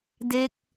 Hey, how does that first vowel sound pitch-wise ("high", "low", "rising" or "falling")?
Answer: falling